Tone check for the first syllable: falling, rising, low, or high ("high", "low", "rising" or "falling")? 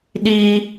high